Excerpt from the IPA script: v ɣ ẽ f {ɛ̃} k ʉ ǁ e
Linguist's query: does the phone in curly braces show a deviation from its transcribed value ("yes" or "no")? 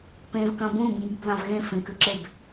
yes